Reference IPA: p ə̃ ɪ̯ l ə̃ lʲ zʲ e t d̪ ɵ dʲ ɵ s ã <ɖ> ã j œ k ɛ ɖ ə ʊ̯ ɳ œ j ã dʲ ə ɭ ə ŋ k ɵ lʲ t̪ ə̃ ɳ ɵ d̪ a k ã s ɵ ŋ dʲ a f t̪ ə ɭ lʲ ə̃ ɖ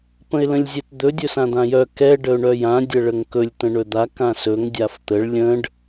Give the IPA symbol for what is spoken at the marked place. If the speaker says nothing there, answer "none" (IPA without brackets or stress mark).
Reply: d̪